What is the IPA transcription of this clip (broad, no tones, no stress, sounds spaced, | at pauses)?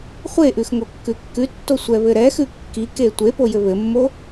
χʷ e ʔ ʉ x ŋ o kː ʉ kː ʉ tː o sʷ ɛ β ɘ ɾ ɛ x ʉ kː i k e tʷ e p o j ɘ β ɘ mː o